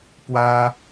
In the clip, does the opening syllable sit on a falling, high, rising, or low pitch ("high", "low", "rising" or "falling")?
high